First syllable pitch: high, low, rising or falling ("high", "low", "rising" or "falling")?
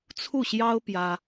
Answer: falling